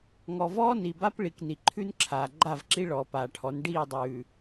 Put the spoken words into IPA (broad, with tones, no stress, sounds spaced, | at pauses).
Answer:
ŋ ɔ˨ v ɔː˦ n i˨ b a˦ p ɭ i˨ k n i˨ ǃʰ ʉ˦ n ǁʰ aː˨ ɡ͡ǃ a˦˨ v ǁ i˦ ɭ ɔː˨ p aː˨ ʈʰ ɔ˨˦ n ɖ iː˦˨ dˤ ʉː˨